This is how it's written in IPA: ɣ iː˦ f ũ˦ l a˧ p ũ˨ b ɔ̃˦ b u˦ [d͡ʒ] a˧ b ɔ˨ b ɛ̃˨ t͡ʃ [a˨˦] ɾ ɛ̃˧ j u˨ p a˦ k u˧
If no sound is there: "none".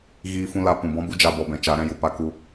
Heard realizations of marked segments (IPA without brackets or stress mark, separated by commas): d͡ʒ, a˨˦